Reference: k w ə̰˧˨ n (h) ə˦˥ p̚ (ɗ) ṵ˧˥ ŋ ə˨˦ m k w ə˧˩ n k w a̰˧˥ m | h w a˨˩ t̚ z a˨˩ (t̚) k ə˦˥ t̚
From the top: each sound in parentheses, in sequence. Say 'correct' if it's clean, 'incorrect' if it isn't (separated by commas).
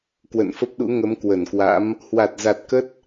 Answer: incorrect, correct, correct